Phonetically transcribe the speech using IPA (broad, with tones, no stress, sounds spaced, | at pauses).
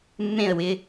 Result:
mː ẽ˦˨ ə̯ w ɪ˧